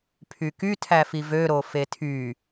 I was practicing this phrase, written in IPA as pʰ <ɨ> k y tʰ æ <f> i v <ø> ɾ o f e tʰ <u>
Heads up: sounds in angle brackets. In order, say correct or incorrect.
incorrect, correct, correct, incorrect

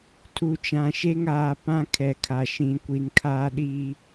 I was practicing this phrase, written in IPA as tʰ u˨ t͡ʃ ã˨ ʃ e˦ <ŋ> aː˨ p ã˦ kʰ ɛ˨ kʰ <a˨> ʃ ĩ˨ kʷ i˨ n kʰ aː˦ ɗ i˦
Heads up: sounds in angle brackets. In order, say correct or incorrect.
correct, correct

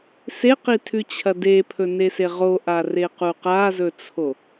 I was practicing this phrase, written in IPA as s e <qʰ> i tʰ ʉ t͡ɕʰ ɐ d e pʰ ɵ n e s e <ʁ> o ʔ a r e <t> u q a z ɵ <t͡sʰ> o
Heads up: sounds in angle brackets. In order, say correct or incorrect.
incorrect, correct, incorrect, correct

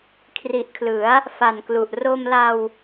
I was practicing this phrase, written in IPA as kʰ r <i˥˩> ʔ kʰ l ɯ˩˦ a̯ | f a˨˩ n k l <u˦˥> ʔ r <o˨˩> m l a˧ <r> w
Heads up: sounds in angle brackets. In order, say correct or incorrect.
incorrect, incorrect, incorrect, incorrect

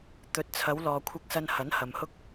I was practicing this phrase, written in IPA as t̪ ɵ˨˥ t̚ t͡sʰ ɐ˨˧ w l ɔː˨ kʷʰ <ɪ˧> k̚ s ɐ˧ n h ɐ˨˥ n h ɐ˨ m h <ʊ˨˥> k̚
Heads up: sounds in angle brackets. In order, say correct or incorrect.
correct, incorrect

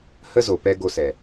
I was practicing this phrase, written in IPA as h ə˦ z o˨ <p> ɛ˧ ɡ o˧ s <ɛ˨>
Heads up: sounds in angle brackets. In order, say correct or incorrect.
correct, correct

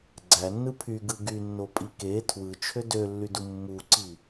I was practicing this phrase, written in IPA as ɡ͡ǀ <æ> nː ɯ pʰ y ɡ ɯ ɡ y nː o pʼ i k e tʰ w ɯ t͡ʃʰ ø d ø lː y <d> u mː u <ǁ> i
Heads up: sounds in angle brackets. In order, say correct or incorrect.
correct, correct, incorrect

